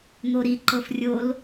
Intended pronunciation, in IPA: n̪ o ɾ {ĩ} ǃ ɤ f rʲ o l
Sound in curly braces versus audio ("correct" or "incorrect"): incorrect